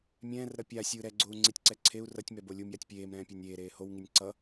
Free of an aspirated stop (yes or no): no